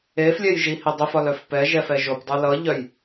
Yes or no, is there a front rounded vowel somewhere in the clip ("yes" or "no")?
yes